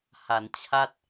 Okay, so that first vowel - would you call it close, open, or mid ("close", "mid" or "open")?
open